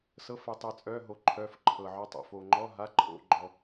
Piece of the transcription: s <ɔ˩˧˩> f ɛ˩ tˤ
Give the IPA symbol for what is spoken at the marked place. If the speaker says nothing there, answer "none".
ɤ˩˧˩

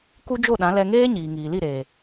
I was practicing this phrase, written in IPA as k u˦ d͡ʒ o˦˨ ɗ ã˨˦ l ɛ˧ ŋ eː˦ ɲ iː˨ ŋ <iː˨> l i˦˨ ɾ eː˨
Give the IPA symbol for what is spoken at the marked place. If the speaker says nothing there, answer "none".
iː˨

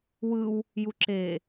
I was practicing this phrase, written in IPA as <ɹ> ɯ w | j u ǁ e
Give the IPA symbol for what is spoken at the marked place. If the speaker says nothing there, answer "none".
w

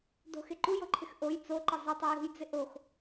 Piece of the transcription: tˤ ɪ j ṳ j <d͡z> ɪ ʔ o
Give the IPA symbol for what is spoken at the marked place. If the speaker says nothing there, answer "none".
d͡z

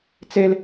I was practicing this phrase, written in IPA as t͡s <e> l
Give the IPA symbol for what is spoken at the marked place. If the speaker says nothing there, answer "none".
e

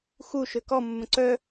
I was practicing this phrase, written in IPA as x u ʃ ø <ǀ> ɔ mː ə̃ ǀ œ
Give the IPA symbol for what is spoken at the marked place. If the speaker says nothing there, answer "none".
k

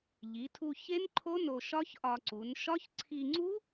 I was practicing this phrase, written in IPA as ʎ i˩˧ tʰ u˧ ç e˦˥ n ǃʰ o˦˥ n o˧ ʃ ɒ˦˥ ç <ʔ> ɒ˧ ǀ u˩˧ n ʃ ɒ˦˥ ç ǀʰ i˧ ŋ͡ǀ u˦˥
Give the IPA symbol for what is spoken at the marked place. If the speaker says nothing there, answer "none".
ʔ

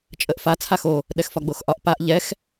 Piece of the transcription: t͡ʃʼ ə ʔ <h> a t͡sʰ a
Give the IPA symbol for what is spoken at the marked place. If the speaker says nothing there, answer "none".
f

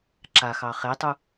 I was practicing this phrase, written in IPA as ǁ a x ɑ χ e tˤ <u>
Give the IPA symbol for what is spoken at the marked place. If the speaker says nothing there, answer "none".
u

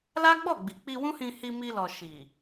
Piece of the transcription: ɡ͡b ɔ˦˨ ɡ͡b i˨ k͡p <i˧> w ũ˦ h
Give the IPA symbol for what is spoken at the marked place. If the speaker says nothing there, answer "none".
i˧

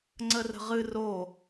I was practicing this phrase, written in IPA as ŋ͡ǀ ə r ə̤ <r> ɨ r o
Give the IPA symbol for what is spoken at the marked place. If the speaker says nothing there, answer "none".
ʁ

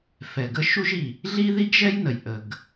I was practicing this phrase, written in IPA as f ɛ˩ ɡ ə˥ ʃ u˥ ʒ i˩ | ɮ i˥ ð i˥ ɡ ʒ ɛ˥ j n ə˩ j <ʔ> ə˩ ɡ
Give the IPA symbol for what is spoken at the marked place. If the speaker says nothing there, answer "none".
ʔ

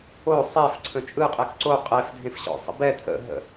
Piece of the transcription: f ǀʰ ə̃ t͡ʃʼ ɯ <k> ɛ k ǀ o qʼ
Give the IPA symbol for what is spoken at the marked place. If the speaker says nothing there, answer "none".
qʼ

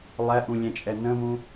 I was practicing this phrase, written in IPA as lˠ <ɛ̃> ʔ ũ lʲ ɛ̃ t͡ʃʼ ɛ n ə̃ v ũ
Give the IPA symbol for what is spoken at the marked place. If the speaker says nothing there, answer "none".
ɛ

